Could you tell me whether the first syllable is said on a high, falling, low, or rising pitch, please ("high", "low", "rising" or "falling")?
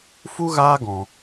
high